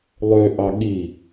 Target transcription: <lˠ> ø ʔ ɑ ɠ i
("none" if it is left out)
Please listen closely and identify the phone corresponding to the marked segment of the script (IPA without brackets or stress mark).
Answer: lˠ